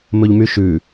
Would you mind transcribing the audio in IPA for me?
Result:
m ɵ ʎ m y ʃ ʉ

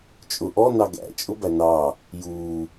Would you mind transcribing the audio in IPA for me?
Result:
t͡ʃʼ ʊ ʔ ɔ n ɑ ɡ æ̰ t͡ʃʼ ʊ b æ n ɑ | j u

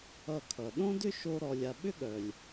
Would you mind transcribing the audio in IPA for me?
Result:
ʌ˧ kʰ ʌ˩ ɗ õ˥ d ʏ˥ ʃ o˥ ɾ ɔ˧ lʲ a˧ ɓ ʏ˥ ɠ œ˩ lʲ

